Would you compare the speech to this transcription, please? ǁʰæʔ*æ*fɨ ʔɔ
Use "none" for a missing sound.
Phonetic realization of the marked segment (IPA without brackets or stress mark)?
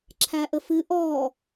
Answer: ə